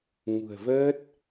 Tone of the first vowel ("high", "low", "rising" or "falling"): low